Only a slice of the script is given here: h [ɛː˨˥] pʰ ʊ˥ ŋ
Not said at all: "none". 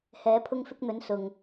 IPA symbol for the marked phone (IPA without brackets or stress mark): ɛː˨˥